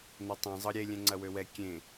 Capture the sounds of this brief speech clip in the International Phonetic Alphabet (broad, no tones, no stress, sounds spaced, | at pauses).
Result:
n̪ ɐ tˤ ẽ zˤ ɤ ɾʲ e lʲ ɛ̃ ŋ͡ǀ ɐ w ø w ɛ kʲ ẽ